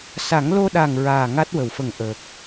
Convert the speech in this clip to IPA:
s a˨˩˦ ŋ l o˧ ɗ a˨˩ ŋ ɹ aː˨˩ ŋ a˦˥ t̚ w ə˨˩˨ w f ə˨˩ ŋ ʔ əː˨˩ k̚

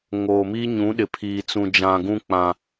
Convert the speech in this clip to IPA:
ŋ oː˨ m i˦ ɲ ũ˨˦ ɗ ɪ˨ pʰ iː˨ t͡s ũ˨ d͡ʒ ã˨ ɡ ũ˦ k͡p ã˨

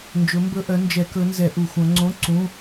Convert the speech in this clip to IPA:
n d͡ʒ ɵ˨˦ m b ɵ˧˥˧ ʔ œ˨˦ n d͡ʒ ɛ˧˩˧ k ɵ˨˦ n z ɛ˧˩˧ ʔ u˧˩˧ xʷ œ̃˨˦ ŋ͡ǀ õ˧˥˧ ǀ ũ˧˥˧

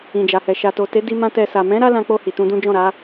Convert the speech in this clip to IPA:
ĩ˨ d͡ʒ a˨ h ɛ˨ ʃ a˨ t o˨ t e˨˦ d i˧ m ã˧ t ɛ˧ s a˨ m ɛ̃˨˦ ɾ a˦ l ã˧ k͡p o˧ h i˨ t ũ˧ d ũ˦ d͡ʒ ɔ̃˦˨ ɾ a˨˦

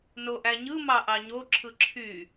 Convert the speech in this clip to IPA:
n o ʔ æ ɲ ɯ m ɑ ʔ ɑ ɲ o ǁʰ ɯ ǁʰ y

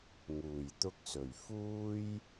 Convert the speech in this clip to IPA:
ŋ uː˨˩ j t̪ ʊ˧ k̚ s ɵ˨˩ ɥ f uː˥ j

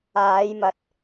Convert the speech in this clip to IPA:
aː˨˧ j m ɐ˨ t̚

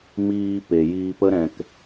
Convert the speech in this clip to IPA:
m iː˨ p e˨ j iː˨ p ə˧ ɾ ɛ̃˨ k

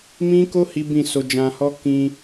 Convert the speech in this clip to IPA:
m ĩ˦ k o˦ h i˦ b ĩ˦˨ s o˧ d͡ʒ ã˧ h ɔ˦ k ĩ˧

